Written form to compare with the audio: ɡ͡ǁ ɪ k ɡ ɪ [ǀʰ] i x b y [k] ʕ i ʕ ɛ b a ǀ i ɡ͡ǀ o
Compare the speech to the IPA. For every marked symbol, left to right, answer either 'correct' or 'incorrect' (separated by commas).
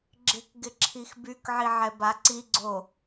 incorrect, correct